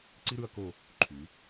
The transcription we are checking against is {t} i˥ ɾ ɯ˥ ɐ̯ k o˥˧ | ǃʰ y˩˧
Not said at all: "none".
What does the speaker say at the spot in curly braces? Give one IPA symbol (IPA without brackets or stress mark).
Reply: ǀ